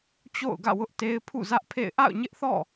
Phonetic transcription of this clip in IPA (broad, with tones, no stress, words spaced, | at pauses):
t͡ɕo̰˦˨ʊ̯ɡä̰˦˨wʊ˦ʔte˦ɪ̯ pʰṵ˦˨zä˦ʔpʰḛ˦˨ɪ̯ ʔa̰˦˨ʊ̯ɲɪ˦ʔθɔ̰˦˨